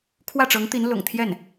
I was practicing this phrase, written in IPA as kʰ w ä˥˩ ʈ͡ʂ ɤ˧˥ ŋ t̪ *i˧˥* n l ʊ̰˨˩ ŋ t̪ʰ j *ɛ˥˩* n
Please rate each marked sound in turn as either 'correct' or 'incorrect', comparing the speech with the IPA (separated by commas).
correct, correct